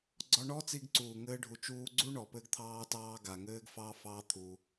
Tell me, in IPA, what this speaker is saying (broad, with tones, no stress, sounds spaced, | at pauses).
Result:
ɡ͡ǀ ɔ˧ ɳ ɔ˦ t͡s i˧ ɡ ǀ uː˨ ŋ ɘː˧ ɖʱ u˨ t͡ʃ uː˧ ɡ͡ǀ u˦ ɳ ɔ˨ p ɘ˧ ɡ t̪ʰ ɑː˧ t ɑː˧ ɡ a˨ ŋ ɘː˦ ɡ f ɑː˦ f ɑː˦ t̪ʰ u˧